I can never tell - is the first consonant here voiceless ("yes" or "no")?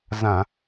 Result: no